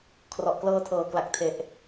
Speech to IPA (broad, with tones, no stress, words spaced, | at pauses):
kʰrɔ˨˩ʔklɤː˧tʰɤː˨˩kla˨˩k̚ tʰe˨˩ʔ